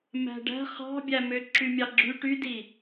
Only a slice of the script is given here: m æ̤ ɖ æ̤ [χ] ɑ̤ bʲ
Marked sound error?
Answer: no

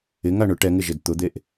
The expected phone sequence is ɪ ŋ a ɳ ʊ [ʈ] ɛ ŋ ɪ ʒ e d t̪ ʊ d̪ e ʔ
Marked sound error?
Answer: no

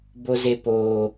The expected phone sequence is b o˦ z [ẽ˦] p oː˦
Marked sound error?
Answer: yes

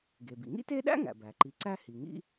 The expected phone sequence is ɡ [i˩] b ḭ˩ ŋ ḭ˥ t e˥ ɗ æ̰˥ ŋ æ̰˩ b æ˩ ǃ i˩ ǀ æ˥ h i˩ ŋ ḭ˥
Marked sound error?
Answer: yes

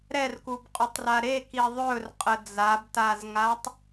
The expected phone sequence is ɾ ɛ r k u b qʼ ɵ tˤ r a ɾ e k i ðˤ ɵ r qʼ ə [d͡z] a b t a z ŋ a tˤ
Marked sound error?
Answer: no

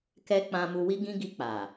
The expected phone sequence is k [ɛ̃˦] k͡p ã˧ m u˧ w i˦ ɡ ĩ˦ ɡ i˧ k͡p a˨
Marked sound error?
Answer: yes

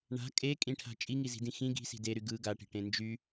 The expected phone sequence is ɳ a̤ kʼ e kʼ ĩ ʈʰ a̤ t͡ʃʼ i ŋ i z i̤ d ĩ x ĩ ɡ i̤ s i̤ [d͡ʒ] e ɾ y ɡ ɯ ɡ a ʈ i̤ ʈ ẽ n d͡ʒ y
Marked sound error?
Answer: yes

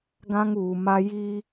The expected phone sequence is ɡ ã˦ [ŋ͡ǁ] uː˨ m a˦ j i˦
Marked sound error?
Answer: yes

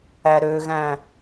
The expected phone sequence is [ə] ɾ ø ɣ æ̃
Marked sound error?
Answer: yes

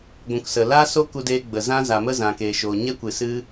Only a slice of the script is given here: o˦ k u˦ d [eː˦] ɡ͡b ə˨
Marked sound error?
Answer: no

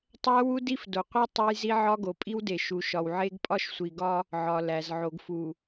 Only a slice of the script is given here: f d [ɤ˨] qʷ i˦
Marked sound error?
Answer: yes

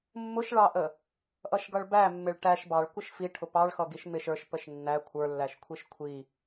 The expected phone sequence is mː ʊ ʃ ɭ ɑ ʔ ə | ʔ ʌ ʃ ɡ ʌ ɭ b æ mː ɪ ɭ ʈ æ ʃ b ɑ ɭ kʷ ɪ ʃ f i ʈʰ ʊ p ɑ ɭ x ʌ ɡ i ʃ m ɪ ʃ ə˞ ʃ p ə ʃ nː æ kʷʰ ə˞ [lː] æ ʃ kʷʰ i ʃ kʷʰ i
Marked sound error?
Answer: no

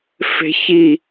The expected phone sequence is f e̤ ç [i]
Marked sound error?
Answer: no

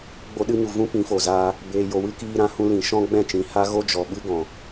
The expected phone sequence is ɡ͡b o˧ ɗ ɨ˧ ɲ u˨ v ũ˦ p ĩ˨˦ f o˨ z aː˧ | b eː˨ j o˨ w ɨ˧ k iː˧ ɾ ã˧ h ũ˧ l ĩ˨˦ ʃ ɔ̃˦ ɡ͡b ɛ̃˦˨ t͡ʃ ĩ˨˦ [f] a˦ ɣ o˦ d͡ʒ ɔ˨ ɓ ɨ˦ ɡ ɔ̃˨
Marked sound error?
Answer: yes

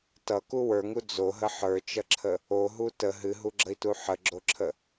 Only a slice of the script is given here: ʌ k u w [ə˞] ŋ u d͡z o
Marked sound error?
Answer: no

